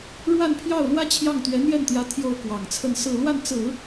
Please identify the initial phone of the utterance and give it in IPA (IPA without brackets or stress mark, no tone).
ɻ